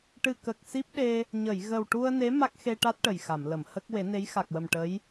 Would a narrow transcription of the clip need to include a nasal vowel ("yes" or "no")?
no